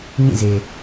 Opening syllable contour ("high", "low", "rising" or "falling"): falling